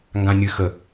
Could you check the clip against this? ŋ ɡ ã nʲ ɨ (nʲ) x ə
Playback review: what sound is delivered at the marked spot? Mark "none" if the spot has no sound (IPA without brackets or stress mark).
none